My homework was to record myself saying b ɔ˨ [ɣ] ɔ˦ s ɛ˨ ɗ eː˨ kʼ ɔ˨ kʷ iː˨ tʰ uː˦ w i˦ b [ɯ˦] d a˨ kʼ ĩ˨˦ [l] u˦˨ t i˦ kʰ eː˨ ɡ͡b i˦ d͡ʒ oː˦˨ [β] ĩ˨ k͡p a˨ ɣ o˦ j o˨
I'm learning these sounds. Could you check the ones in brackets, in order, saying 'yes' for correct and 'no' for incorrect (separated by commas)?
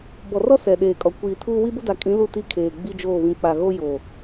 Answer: no, no, yes, yes